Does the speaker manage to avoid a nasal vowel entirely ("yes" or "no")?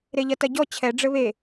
yes